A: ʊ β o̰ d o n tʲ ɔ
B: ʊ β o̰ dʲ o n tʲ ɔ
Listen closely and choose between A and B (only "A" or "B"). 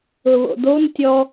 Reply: A